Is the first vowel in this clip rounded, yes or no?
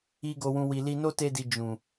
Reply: no